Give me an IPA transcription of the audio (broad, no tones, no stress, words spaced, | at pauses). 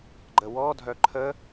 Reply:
ɡ͡ǃəwɔ dʱœǃʰə